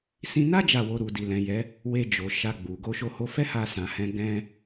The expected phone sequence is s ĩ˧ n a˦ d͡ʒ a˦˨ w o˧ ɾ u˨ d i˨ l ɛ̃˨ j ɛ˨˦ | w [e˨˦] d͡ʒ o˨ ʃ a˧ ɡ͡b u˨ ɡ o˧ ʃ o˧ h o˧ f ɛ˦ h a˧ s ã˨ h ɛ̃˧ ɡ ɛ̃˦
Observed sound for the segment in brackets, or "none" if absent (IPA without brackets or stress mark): e˧